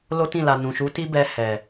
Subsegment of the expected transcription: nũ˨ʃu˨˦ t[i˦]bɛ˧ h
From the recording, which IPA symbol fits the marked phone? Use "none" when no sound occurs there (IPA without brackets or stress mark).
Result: i˦